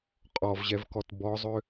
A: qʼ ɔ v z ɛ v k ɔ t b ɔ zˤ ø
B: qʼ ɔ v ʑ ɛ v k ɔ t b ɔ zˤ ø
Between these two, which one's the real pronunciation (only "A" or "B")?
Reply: B